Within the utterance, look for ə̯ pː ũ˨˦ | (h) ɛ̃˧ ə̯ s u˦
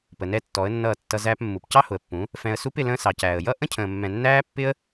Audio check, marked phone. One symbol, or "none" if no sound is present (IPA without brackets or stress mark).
f